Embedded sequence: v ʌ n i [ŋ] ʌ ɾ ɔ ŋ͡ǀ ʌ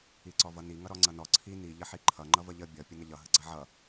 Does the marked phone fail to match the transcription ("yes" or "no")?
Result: no